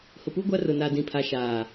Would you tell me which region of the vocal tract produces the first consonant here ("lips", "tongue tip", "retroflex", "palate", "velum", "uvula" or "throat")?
throat